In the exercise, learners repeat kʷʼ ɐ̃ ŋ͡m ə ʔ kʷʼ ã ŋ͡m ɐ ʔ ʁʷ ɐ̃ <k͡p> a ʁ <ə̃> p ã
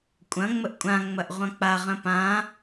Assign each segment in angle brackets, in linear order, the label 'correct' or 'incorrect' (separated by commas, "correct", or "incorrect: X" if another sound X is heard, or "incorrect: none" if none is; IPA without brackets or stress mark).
correct, correct